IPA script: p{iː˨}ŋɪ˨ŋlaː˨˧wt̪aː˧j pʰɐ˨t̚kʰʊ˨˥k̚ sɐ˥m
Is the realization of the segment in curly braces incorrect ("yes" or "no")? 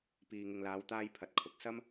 no